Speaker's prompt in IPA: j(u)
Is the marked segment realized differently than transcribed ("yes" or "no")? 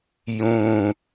yes